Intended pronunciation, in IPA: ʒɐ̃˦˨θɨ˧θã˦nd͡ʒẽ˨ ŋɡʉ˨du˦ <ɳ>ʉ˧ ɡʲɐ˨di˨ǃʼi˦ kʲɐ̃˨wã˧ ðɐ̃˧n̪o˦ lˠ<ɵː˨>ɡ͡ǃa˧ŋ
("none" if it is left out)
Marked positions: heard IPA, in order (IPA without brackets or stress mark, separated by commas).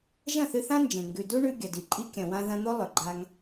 ɳ, ɵ˨